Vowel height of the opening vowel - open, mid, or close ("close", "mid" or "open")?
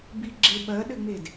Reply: close